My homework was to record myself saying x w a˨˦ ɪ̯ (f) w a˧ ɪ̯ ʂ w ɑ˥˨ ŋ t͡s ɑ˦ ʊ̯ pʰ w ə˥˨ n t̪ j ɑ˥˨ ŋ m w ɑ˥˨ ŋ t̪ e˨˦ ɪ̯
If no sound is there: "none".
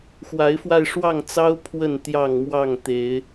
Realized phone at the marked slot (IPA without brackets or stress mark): f